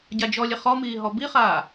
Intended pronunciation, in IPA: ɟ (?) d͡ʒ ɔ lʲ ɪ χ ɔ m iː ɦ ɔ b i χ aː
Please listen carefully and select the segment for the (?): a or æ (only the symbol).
a